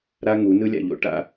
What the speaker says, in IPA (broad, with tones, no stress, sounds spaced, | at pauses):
ɾ a˦ ŋ u˨˦ n ɯ˦ lʲ a̰˨ ʎ o̰˨ ʈ a̰˨